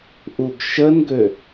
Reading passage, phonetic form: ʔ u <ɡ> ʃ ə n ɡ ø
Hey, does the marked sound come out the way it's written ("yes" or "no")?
yes